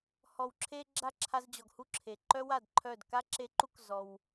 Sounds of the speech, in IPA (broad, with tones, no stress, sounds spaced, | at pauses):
h ɔ˨ w ǁʰ e˧ ɡ͡ǁ a˦˨ ǁʰ a˧ z d͡ʑ ɔ˨ ɡ h u˦˨ ǁʰ e˨ ǃ œ˦ w a˦˨ d ǃʰ œ˦˨ d k a˦ ǁ e˧ ǃ u˦ k z ɔ˧ w